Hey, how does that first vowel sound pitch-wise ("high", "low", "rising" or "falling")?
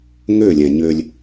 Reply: falling